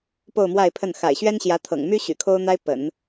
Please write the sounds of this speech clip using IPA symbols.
p o˥˧ ʊ̯ m w a˥˧ ɪ̯ pʰ ə˥˩ n x a̰˨˩ ɪ̯ ɕ ɥ ɛ˥ n ɕ j ä˧˥ t̪ʰ ɤ̰˨˩ ŋ m y˥ ɕ y̰˨˩ kʰ o˥ ʊ̯ n̪ a˥ ɪ̯ p ə̰˨˩˦ n

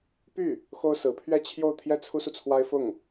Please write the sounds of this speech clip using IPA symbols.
p y˥˩ | x o˥ ʊ̯ s ɹ̩˧˥ pʰ ɥ ɛ˥˧ t͡ɕʰ j o˥˧ ʊ̯ t̪ʰ j ɛ˥˩ t͡sʰ u˥ s u˨ t͡sʰ w a˥ ɪ̯ f ʊ˥˩ ŋ

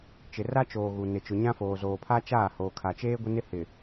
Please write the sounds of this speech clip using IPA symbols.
t͡ʃ ɪ˨ r a˦ t͡ʃ oː˨ ɣ u˨ n ɪ˨ t͡ʃ ʊ˨ ɲ ã˦ f oː˨ z oː˨ pʰ a˦ t͡ʃ aː˦˨ h oː˨ kʰ a˨ t͡ʃ eː˦ ɡʷ ɪ˦ n ɪ˦ h ɪ˨

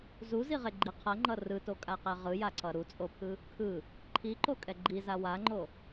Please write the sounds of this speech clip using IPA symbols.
z u z i ʁ e ɡ͡ǃ i qʰ ʌ ŋ͡ǃ ʌ r ɯ t o kʼ a q ɛ ʁ ɯ j a ǀ ʌ ɾ u t͡sʼ o pʰ ɯ | kʰ ɯ | ǃʰ i ǃ o kʼ ɛ ɡ͡ǃ i z a w a ŋ͡ǃ o

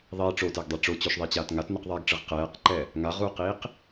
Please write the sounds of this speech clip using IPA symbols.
ðˤ i ʈ͡ʂ o t ɛ ɡ dˤ ɯ ʈ͡ʂ o t͡ɕ o ʃ ðˤ i t͡ɕ aː t ŋ a t n ɯ q ðˤ ɛː ɡ ʈ͡ʂ ɯ ʁ q ɛː q ǃ ɛ | ŋ a ʁ u q iː q

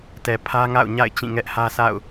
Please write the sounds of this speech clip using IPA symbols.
t ɛ˨ pʰ ä˦ ŋ a̰˦˨ ʊ̯ ɲ a̰˦˨ ɪ̯ t͡ɕ ĩ˦˨ ŋ ɛ˦ ʔ h ä˦ s a̰˦˨ ʊ̯

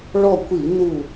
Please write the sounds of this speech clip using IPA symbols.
ɭ ɔ˦˨ kʷ i˧˩˧ n u˦˨

